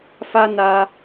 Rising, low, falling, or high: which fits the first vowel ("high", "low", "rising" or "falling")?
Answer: high